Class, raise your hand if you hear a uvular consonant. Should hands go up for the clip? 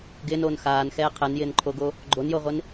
yes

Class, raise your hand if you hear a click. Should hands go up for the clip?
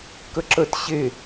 yes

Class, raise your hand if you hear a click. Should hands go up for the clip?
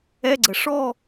yes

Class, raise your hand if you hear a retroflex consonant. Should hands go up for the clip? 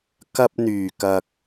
no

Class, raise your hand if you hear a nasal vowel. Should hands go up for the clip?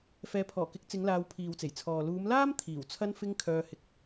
no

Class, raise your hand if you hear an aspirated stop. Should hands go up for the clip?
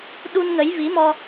no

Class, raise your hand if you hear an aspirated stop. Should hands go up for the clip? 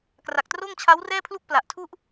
yes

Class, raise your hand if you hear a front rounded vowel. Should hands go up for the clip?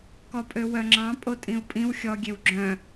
yes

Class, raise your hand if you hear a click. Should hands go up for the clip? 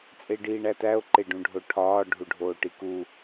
yes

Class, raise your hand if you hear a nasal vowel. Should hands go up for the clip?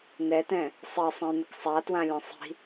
yes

